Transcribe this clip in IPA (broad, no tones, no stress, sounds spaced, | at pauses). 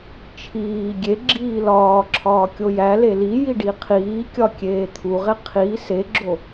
t͡ʃʰ iː ɡʲ e ɡ͡ǁ iː l ɒː ǁʰ ɒː kʲ o j æ l e l i j i ɖ i qʰ iː kʲ ɒ kʲ eː t̪ʰ u ʁ e qʰ i s e ɡ͡ǁ o